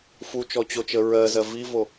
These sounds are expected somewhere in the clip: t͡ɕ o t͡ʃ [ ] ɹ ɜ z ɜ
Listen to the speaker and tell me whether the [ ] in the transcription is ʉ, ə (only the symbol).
ə